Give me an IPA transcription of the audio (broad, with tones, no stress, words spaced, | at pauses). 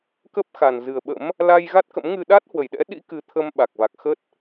kə˦˥p̚ xa˨˩nzɨ˨˩ə̯ɓə̰˧˥m | la˧j ɣa˦˥t̚kə̰˧˥mŋɨ˧ ɗa˦˥t̚hwə˧˩jɗɛ̰˧˥ɗḭ˧˥ kɨ˨˦t̪ʰə˧m ɓa˨˩k̚va˨˩k̚ xə˦˥t̚